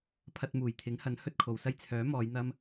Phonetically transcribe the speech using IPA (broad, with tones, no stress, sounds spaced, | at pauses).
pʰ ɐ˨ t̚ m uː˨˩ j t̪ʰ ɪ˨˥ ŋ h ɐ˨˥ n h ɵ˧ t̚ kʰ o˨ w s ɐ˧ j t͡sʰ œː˨˥ m ɔː˨˧ j n̪ ɐ˧ m